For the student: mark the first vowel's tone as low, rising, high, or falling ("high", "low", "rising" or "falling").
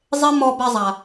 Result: high